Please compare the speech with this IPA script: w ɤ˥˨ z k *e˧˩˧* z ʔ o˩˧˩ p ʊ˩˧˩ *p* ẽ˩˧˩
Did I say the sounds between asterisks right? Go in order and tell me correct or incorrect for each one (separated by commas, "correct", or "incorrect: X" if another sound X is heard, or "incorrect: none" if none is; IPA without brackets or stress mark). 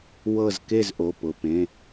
incorrect: e˥˨, correct